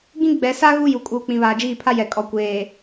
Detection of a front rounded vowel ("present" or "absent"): absent